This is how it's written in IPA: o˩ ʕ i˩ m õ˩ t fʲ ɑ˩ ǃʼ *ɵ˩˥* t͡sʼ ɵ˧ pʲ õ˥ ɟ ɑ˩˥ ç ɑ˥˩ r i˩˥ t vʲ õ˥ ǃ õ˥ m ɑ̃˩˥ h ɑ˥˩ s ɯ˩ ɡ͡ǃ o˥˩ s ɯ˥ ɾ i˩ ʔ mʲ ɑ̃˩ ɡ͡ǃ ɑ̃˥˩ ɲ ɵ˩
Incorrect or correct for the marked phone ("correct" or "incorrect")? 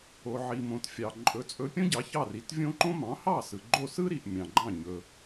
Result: correct